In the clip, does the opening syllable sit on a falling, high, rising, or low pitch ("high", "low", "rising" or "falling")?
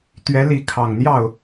rising